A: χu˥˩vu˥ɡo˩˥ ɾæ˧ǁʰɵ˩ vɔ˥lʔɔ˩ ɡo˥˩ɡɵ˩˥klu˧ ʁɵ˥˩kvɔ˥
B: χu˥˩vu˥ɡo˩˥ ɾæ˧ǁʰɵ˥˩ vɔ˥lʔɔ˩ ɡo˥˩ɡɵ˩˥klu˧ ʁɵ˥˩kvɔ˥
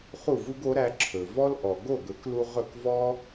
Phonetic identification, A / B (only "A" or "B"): A